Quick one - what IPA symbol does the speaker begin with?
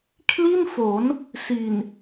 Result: kʰ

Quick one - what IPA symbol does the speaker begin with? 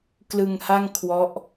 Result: k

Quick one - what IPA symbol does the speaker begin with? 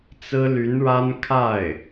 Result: t͡s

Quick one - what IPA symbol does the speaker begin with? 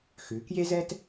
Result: x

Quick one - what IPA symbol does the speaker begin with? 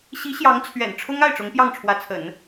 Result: ɕ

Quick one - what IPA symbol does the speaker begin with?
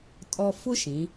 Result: tʼ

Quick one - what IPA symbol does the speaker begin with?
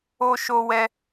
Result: o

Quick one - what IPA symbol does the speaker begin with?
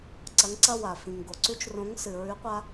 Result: ǀ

